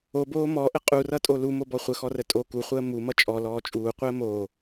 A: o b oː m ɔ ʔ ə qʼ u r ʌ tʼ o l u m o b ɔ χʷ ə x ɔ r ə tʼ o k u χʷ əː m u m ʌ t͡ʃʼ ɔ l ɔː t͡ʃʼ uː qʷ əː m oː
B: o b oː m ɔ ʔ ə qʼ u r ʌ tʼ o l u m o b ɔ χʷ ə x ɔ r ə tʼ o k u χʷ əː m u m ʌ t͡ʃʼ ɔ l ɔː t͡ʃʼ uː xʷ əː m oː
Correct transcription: A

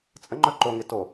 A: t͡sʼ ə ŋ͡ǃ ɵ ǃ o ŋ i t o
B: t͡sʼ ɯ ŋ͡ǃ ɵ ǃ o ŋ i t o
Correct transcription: A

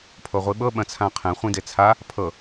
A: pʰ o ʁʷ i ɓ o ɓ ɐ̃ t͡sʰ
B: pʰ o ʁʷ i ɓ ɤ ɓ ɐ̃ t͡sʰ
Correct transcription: B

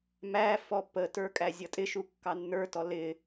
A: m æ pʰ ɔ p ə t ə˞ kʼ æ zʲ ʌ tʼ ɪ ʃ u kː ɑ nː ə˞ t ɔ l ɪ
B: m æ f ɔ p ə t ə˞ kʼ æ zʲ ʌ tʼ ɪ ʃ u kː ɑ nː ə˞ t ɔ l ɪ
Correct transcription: B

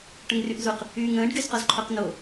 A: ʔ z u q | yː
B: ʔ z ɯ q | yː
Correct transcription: A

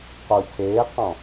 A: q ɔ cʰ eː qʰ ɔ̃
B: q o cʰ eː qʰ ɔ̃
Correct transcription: B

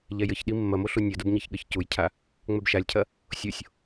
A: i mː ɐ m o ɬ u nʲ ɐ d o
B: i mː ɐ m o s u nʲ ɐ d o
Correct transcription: A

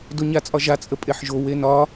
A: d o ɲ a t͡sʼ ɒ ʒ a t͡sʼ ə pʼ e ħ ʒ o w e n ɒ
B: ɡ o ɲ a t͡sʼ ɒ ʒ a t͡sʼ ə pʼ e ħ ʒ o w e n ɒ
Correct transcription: A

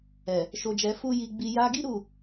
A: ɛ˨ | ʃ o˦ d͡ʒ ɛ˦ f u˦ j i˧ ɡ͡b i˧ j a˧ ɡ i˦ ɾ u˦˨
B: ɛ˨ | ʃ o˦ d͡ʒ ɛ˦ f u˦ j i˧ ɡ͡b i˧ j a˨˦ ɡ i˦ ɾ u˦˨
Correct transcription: A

